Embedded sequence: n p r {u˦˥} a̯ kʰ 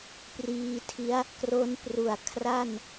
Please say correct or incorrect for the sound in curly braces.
incorrect